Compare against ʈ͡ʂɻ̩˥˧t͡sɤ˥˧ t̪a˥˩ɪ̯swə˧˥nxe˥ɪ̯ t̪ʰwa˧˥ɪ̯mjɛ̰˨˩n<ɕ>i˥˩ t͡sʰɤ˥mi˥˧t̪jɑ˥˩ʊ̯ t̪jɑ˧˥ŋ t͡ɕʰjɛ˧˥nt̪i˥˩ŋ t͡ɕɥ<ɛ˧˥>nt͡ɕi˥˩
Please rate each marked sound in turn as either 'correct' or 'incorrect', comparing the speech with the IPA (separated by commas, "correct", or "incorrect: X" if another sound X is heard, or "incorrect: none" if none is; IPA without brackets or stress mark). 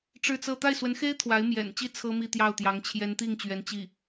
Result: incorrect: t͡ɕ, correct